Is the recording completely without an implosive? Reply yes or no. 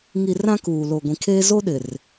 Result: no